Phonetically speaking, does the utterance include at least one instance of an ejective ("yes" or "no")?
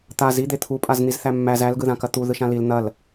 yes